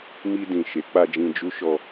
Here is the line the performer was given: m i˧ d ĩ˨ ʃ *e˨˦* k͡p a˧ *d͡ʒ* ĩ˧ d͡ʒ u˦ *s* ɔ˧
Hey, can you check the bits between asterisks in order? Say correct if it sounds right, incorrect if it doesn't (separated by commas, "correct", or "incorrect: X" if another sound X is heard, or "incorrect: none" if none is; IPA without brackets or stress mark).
correct, correct, incorrect: ʃ